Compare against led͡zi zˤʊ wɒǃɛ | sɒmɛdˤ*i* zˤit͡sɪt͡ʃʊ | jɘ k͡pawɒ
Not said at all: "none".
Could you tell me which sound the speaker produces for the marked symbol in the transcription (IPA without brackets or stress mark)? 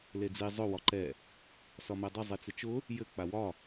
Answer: ɪ